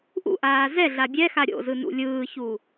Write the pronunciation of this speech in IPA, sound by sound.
ʔ ṵ ʔ aː z ɛ ɮ a bʲ ɛ x a ɾʲ o̰ z ɯ n ṵ lʲ ɯː ç u

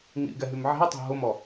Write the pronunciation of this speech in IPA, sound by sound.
ŋ ḭ ɡ ɛ ɦ y m ʕ i̤ ʊ̯ tˤ ɛ̤ ɦ ʊ m ɔ

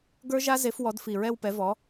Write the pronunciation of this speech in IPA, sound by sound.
ɡ ə˞˦˥ ʒ a˦˥ z e˨˥ f w ɔ˨˥ d f i˨˩ ɹ ɛ˥˧ w p ɛ˨˥ v ɔ˨˥

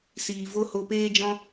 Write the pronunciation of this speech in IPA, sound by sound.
s iː˨ v o˦ h o˧ p eː˦ d͡ʒ ɔ̃˦

